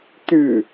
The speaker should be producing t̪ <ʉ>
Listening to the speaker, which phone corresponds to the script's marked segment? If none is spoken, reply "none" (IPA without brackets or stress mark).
ʉ